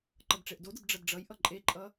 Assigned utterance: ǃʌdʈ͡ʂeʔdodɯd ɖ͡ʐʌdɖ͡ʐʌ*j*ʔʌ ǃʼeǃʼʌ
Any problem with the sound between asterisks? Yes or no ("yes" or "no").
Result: no